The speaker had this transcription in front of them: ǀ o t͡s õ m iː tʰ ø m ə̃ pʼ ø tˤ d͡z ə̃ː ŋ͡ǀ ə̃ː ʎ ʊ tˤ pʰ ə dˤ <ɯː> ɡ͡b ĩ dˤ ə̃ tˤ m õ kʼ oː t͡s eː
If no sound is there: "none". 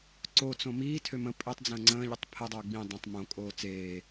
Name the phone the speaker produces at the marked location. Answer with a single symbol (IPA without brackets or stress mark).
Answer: ʊː